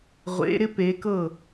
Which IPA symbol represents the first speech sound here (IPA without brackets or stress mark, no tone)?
ʁʷ